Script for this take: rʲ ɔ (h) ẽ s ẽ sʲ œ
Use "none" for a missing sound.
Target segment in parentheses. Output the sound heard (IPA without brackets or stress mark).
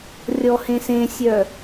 h